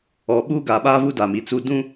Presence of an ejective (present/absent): absent